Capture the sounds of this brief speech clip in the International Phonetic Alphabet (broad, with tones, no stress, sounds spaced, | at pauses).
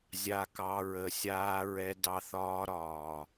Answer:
zʲ a˧ k ɑ˧ ɹ ə˨ sʲ aː˧ ɹ ɛ˧ d ɑ˧ θ ɒː˦ ɾ ɒː˨